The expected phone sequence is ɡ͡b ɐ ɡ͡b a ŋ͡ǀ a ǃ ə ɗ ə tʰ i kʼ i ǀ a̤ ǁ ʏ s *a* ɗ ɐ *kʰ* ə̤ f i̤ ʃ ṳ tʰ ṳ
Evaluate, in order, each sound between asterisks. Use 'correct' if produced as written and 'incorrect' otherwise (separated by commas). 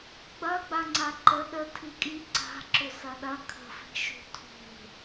incorrect, correct